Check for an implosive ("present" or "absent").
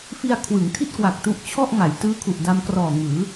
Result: absent